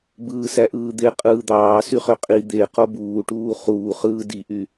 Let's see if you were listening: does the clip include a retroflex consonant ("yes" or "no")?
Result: yes